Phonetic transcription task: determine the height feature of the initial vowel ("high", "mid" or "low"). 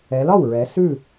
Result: mid